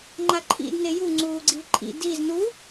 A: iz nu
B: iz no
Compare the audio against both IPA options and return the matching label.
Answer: A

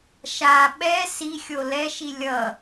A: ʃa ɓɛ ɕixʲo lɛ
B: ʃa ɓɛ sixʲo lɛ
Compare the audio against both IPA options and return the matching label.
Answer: B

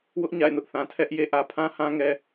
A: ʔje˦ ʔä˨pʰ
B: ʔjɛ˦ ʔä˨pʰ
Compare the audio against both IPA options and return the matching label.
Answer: A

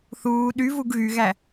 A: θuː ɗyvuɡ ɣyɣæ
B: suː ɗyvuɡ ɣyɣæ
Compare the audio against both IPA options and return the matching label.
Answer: A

